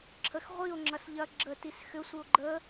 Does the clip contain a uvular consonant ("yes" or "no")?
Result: yes